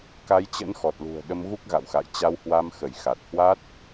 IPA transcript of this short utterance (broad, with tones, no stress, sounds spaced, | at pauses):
k a˨˦ j t͡ɕ ə̰˧˥ n x ɔ˨˩ t̚ l ṳ˨˩ ə̯ ɗ ə˧ m ɣ u˦˥ k̚ ɣ a̰˧˨ w x a̰˧˨ j t͡ɕ a˧ w h w a˧ m x ə˧˩ j x a˨˩ t̚ h w a˦˥ t̚